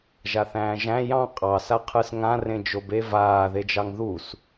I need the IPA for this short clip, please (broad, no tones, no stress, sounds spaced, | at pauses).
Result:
ʒ a θ æ̃ː ʒ æ̃ j ɑ̃ qʼ ɑ s a qʰ ɯ s ŋ ã r ẽ d͡ʒ o b e v aː ð e d͡ʒ ɑ ŋ ð u s